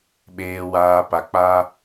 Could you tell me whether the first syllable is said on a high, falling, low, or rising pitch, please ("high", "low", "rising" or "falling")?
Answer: low